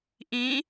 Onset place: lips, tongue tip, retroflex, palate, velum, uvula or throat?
throat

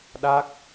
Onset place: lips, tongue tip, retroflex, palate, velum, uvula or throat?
tongue tip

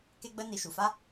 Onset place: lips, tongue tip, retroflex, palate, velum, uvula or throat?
velum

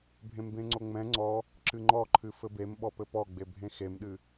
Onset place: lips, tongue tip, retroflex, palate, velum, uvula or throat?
lips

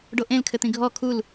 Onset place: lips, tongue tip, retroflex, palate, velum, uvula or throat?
retroflex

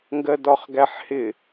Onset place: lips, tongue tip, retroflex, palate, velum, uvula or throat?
velum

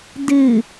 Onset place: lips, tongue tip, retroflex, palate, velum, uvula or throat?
tongue tip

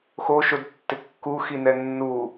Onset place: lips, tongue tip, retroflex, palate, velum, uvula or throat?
velum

